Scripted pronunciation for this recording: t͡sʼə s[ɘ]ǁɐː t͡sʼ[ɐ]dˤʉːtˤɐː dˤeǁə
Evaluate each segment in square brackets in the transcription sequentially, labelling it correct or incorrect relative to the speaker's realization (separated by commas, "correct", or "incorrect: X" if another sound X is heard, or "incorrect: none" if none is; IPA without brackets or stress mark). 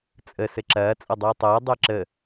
correct, correct